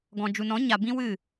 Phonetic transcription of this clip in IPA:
ɡ ɔ̃˨ d͡ʒ u˨ n ɔ̃˨˦ ɲ a˨ b ĩ˦ w ɨ˦˨

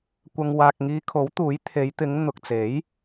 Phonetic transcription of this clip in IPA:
kʷ ɐ˧ ŋ w aː˨ k̚ ŋ iː˧ kʰ o˨˥ w t̪ uː˨˥ j t̪ʰ e˨˧ j t̪ ɪ˨˧ ŋ n̪ ʊ˨ k̚ t͡s e˨˥ j

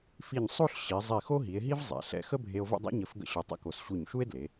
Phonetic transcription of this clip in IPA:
f i˧˩ ɲ sˤ o˥˧ ɬ ɕ i˩˧ zˤ i˧˩ x o˥ ɦ i˩˧ e̯ ɦ i˥ v zˤ ɛ̰˩˧ ɬ ɛ̰˧ x ə˥ bʱ e˧ o̯ v ə̰˥˧ dˤ ɛ̰˥ ɲ ə˧˩ f ɡ ə̰˥ ɕ œ˧˩ tˤ ə̰˥˧ k o˧˩ s ɕ u˧˩ ɲ ʃ u˥ e̯ d l e˩˧

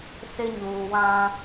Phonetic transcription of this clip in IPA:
s ɪ˦ ɲ uː˨ w ã˦

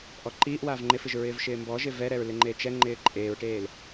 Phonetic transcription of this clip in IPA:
ʔ ɔ ǃ iː ʔ w a v ŋ͡ǃ ɪ f ɪ ʒ ɹ ɪː v ʃ ɪː m b ɔ ʒ ɪ v ɛ ɾ ɛ ɹ l ɪ ŋ͡ǃ e t͡ʃ ɛ ŋ͡ǃ ɪː ǃʼ eː ɹ ʈ eː l

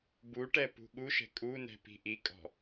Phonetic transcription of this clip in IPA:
b u ʈ ɛ p ṳ ɠ u ʃ ɛ̤ kʼ u n ɛ̤ p i̤ ʔ i kʼ ɔ̤

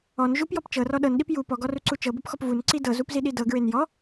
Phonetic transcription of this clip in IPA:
ɔ n ʒ u p j ɔ p t͡ʃ ɤ r ɔ ɗ ɤ n ɗ i p j u p ɔ ɡ ɔ r u ǀ u t͡ʃ ɤ b ɤ p x ɔ p v u n ǀ i d ɤ z u p z i ɗ i d ɤ ɡ ɹ e n j ɔ

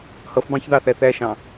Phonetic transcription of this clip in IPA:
h ʌ f b ɑ̃ ç ð ɑ θ æ θ æ ʃ ɑ̃

